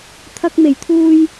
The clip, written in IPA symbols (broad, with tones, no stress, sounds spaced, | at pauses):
t̪ʰ ɐ˧ k̚ m e˨˩ j t̪ʰ uː˧ j